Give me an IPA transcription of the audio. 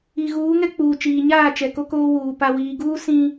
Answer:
i˨ ɣ uː˨˦ ŋ ɛ˦ k͡p uː˨ t͡ʃ iː˨ ɲ aː˦˨ t͡ʃ ɛ˨ k o˦ k oː˦ w uː˨ p a˨ w iː˨ ɡ uː˦ s ĩ˦

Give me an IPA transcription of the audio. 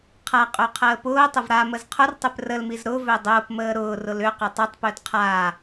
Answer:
qʰ a qʼ ø qʰ əː p ʊː tˤ ʊ v ɾ a m ə z qʰ ʊ r tˤ ø p r ə l m i z ɾ ʊ v ø dˤ ʊː p m əː ɾ ʊː r ʊ l ʏ q ʏ tˤ ʏ tˤ p ø d qʰ a

